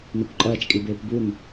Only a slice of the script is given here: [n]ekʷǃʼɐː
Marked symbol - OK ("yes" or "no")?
yes